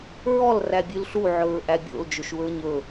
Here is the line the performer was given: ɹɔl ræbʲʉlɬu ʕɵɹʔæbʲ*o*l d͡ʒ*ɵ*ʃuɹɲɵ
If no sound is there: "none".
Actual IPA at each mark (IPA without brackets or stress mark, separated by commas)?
o̰, ɵ